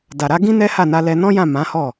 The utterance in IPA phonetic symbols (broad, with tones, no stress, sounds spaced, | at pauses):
d a˨ ɾ a˧ ɡ ĩ˦ n ɛ˦ h a˦˨ n a˧ l ɛ˧ n ɔ̃˦ j ã˦˨ m ã˨˦ h ɔ˦˨